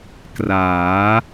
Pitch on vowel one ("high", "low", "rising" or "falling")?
rising